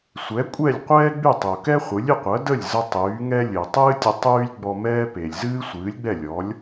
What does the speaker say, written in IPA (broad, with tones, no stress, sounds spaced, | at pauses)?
sʷ ɛ˩˥ kʷʼ ɛ˥˩ lʲ qʷ ɛː˥ ɡ͡b y˥˩ tˤ o˩ k ɛ˥ χʷ ɨ˩˥ lʲ ɨ˧ qʷ ɜ˩˥ d ə˥˩ lʲ z ə˧ tˤ yː˩˥ ŋ ɛ˥ lʲ ɨ˩ tˤ ɨː˥ tʲ ə˧ tˤ yː˥ lʲ ɡ͡b ɔ˧ m ɛː˥ p e˩ lʲ z ɨː˥ sʷ ɨː˩˥ lʲ ɡ͡b ɛ˥˩ lʲ ɔ˩˥ lʲ